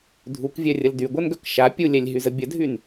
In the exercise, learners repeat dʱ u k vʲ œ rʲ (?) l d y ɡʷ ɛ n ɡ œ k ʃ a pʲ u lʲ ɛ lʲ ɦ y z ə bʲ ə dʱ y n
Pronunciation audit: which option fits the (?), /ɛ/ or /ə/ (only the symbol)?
ə